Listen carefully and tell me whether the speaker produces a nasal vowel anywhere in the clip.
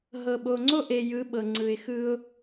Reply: no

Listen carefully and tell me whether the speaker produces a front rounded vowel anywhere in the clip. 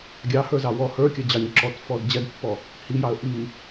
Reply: no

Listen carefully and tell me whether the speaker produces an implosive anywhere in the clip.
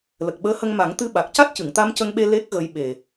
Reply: yes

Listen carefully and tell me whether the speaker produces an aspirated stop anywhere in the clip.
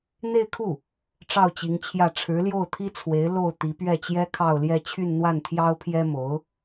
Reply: yes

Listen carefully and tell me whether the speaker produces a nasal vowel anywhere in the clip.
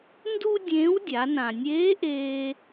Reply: yes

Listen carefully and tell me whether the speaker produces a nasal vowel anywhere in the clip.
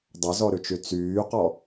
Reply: no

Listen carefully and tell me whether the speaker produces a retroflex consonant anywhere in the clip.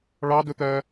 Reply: yes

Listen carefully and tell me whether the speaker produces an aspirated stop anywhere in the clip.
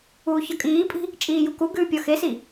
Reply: no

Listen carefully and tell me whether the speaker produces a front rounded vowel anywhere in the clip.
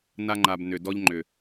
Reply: yes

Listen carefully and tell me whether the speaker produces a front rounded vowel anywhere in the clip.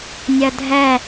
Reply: no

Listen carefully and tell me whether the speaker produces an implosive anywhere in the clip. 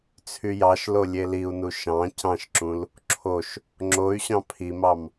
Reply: no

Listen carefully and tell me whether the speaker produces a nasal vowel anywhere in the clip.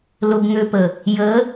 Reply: no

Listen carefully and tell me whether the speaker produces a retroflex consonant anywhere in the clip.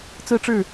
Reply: yes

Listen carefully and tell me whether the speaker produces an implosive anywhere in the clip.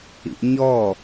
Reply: no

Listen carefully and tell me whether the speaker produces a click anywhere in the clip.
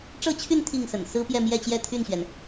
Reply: no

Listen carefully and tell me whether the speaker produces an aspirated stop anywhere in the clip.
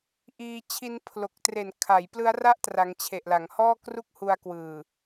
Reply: yes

